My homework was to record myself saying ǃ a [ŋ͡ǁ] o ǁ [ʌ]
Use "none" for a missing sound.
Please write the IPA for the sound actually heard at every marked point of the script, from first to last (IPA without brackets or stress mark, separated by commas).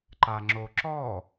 ŋ͡ǁ, ɔ